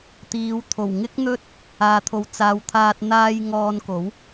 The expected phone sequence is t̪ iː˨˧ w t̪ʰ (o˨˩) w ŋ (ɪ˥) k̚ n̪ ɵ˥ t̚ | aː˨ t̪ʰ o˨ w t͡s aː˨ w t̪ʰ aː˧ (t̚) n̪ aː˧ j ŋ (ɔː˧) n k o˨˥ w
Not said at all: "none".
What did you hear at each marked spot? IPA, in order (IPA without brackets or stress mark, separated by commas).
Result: o˨˩, ɪ˥, t̚, ɔː˧